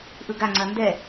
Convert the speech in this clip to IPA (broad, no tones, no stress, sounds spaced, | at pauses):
ʔ ɯ ɡ a ŋ͡ǀ ɐ n d ɛ